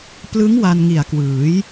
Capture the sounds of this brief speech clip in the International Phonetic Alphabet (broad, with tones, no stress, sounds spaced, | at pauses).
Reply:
p l ɯ˦˥ ŋ w a˧ n ŋ i˨˩ a̯ k w ɯː˩˦ j